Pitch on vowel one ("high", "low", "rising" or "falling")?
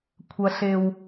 high